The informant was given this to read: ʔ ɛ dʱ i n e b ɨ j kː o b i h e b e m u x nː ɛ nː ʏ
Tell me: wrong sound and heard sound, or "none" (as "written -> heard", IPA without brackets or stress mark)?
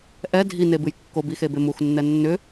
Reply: h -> x